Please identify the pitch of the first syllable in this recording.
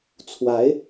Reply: rising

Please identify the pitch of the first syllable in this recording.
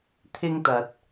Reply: high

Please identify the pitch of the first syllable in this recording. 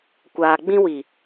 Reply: low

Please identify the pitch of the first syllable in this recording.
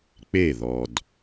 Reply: falling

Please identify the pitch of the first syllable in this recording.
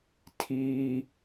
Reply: high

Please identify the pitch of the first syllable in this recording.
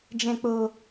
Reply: low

